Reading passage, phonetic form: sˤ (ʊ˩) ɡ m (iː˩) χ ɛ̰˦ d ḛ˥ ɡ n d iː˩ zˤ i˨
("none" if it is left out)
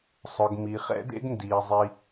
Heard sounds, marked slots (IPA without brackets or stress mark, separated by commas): ʊ˩, i˩